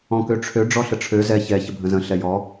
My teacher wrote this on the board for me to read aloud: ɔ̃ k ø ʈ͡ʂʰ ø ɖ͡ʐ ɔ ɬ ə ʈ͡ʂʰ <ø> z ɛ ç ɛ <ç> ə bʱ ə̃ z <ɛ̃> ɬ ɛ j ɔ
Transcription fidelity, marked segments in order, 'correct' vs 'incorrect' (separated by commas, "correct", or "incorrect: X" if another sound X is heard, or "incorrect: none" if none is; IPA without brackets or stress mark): correct, correct, incorrect: ə̃